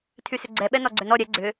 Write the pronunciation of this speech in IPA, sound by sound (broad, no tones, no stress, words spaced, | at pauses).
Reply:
tʰysʏɡ͡ǀɛɓɛ nɔɡ͡ǀønɔ ɾʲɛ ɡ͡ǀʏ